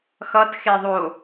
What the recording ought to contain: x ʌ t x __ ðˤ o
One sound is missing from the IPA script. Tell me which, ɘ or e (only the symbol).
e